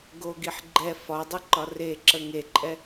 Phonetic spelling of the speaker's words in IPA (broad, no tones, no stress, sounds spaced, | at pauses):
ɡ o ɡ i ħ ɡ͡ǃ ɛ f ɒ dˤ ə ǃ ɒ r e ǁ ə ŋ e ǃʼ ɛ